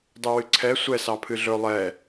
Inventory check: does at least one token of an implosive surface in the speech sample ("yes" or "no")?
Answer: no